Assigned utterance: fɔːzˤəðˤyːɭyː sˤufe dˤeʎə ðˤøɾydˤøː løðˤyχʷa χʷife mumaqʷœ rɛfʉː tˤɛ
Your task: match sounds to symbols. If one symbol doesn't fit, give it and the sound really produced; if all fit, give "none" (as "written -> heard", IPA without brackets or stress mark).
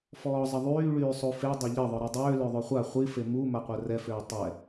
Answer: ʉː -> øː